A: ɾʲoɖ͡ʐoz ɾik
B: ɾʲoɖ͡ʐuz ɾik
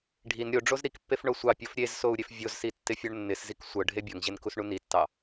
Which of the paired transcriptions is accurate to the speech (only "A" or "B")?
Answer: A